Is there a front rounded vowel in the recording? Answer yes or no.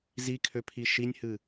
yes